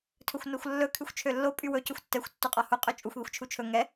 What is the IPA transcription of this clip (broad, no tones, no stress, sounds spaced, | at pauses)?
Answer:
tʰ ɵ xʷ n o xʷ lː ɵ kʰ y xʷ t͡ʃʰ ø lː o pʼ y w ɵ c ɵ xʷ tː ɛ xʷ tː u qʼ ɒ h u qʼ ø t͡ʃʼ u xʷ ð i xʷ t͡ʃʰ u t͡ʃʰ ɵ ŋ ɛ